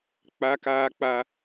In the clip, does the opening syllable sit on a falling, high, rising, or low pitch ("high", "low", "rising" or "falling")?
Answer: high